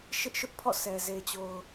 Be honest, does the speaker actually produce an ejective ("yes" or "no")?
no